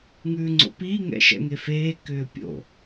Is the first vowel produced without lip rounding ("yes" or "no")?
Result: no